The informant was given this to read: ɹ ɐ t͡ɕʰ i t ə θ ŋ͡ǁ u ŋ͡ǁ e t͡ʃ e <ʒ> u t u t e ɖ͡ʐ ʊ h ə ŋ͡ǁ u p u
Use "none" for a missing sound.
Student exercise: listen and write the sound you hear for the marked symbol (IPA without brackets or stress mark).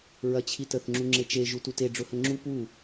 ʒ